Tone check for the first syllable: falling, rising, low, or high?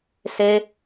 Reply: high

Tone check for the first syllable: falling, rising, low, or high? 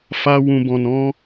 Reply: high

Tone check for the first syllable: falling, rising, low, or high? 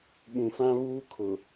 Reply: low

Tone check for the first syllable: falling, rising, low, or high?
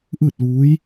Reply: falling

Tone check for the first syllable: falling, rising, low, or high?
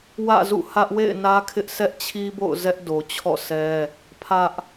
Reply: falling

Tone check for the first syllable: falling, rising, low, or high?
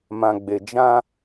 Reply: low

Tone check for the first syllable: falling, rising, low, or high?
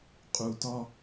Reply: low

